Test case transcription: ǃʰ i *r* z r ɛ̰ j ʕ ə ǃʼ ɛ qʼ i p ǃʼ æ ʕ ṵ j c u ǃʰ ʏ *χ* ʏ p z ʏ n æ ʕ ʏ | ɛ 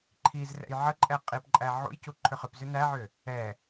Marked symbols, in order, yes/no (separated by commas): no, yes